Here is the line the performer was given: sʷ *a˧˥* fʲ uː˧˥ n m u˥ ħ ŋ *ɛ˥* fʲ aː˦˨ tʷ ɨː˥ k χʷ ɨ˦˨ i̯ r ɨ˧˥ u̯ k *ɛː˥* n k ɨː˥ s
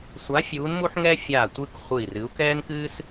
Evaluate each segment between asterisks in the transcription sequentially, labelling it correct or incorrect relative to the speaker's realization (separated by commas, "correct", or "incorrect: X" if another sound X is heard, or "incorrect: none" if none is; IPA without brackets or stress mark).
correct, correct, correct